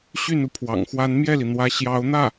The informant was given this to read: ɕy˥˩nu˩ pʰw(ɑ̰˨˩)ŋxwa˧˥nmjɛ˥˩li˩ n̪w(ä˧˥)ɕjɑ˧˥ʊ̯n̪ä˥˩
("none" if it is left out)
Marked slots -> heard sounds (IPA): ɑ̰˨˩, ä˧˥

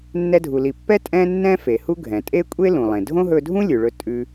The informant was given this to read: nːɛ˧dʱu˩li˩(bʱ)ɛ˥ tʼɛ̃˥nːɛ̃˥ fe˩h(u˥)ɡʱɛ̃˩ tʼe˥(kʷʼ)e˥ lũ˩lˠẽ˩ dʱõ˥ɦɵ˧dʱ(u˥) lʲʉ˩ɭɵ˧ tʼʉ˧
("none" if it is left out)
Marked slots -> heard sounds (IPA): pː, u˥, kʷʼ, ũ˥

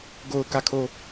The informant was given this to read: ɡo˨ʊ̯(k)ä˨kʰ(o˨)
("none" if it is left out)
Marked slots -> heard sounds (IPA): k, o˨

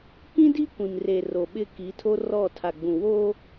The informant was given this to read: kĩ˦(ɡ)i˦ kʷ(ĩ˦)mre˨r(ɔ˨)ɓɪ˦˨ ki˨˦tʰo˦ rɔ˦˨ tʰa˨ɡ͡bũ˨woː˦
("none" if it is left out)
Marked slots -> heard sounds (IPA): d, ĩ˨, o˨

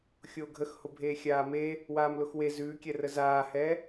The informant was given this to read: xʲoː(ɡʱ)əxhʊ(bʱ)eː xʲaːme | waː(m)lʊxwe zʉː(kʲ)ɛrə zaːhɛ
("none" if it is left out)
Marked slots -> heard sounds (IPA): ɡʱ, bʱ, m, kʲ

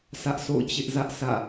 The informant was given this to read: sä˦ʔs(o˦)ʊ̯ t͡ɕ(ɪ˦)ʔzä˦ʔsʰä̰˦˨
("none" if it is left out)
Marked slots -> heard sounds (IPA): o̰˦˨, ɪ˦

